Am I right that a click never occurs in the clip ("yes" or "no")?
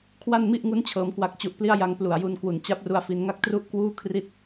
yes